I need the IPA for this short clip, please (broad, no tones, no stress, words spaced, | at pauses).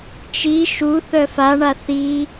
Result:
t͡ʃi ʃu θœfaɳa θi